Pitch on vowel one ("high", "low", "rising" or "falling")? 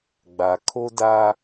low